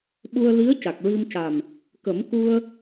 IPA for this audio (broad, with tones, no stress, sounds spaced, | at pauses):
ɓ u˧ ə̯ l i˧˥ ə̯ c a˨˩ k̚ ɹ i˧ m c a˨˩ m | k ə˨˩˦ m k u˧ ə̯